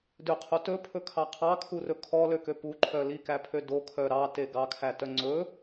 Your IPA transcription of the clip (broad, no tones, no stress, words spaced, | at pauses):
døqʰo tɵpʰɵkʰɑ qʰɑkʰurɵ kʰɔløkø puǃʰœ likæpʰø dokʰœ ɾɑte ɡɑkʰætœ ŋ͡ǀɵ